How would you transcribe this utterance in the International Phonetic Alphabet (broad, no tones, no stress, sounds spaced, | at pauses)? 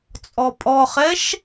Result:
t͡sʼ ɔ pʼ ɔ χ ɛ ʃ